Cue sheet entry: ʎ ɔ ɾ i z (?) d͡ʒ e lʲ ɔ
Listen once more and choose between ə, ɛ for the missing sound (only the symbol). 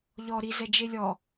ɛ